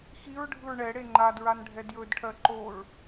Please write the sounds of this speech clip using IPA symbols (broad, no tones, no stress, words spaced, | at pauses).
xiɹɖʱɯɹ ɳɛɽe ŋ͡ǃadɹanɖʱɛ djɵdʈʰɜ ǃoɹ